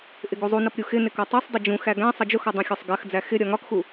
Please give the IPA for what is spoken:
ʔ ɪ ɡ u zˤ u n ʌ p ɾʲ u x ɪ n ɪ k ɒ tˤ ɜ sˤ dˤ ʊ d͡ʒ ũ x æ ɡ æ̃ sˤ ʌ d͡ʒ ʊ x ɒ dˤ ũ xʲ ɒ sˤ ɡ ɜ x d͡z æ x ɪ ɾʲ ɒ ŋ ɒ k x u

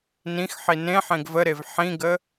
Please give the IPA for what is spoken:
n ĩ x ħ i n ẽ ħ ẽ ɡ v ə ɾ e v ħ ĩ ɡ ə

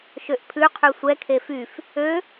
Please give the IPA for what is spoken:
ʃ ø ʔ pʰ ʉ qʰ y sʷ ɛ kʰ e f y f | ø

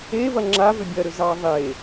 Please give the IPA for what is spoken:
e v ɐ ŋ͡ǁ a v ʏ bʲ ɐ ɾ ʏ z ɑ ðˤ e

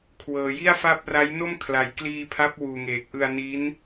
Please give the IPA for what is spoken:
kʰ w ɤː˩˦ j i˥˩ a̯ f a˥˩ p̚ r a˦˥ j n o˥˩ m kʰ l a˨˩ j k l iː˧ pʰ a˦˥ p̚ w uː˨˩ ŋ eː˨˩ k̚ ʔ ɯ˧ a̯ n i˦˥ n

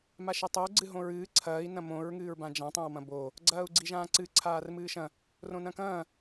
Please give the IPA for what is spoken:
m a ʃ ɘ tˤ o ɡ͡ǀ ɨ ɦ õ ɹ ɨː ǀʰ ɐː i̯ n ɐ̃ m õ ɹ ŋ ɨː ɹ b ã d͡ʒ ã tˤ ɛ̃ w m ɐ̃ b o | ɡ͡ǀ ɐː u̯ ɡ͡ǀ i ʒ ãː ǀ ɨ ǀʰ aː r m ɨː ʃ ɐ̃ | r õ n ɐ̃ k ɐ̃ː

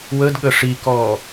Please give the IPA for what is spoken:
w ə d ɠ ə ʂ i k ɔː

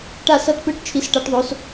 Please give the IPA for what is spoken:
ʈ a˥˧ s ʌ˥˧ t p ɯ˥˧ ʈ t͡ʃʰ i˧˥ s ʈ a˧˥ ʈ ðˤ o˧˥ s

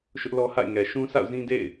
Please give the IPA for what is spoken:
ʃ ʊ˦ ʔ l ɔ˦ h a̰˦˨ ɪ̯ ŋ ɛ˨ ʃ ũ˦ s a̰˦˨ ʊ̯ z ĩ˦ d ḛ˦˨ ɪ̯

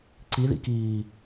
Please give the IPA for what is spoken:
ǀ i ð ḭ k iː

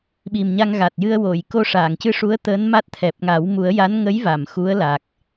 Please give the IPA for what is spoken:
ɓ i˨˩ m ɲ a˧ ŋ ɣ a˨˩ t̚ j ɨ˧ ə̯ w o˨˩˨ j k o˧ ʂ aː˨˩˨ ŋ c ɨ˧ ʂ u˧˥ ə̯ t̪ əː˧˥ n m a˦˥ t̚ t̪ʰ ɛ˨˩ p̚ ŋ a˨˩˦ w m u˨˩˦ ə̯ j a˧˥ n ŋ ə˧˥ j v a˨˩˨ m x u˧˥ ə̯ l a˨˩ k̚

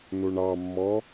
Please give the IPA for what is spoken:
n u ɳ ɑ mː ɔ

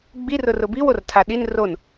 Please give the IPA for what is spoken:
ɡ͡b i r ʊ r ʊ b i w o r tʰ a ɗ i n r o n

